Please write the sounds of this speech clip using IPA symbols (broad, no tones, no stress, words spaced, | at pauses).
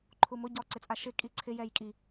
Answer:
ǃʰumʊ ɟɔ ǀɪt͡sʼaʃɪ kʼiǀʰɪ jɛjkʼi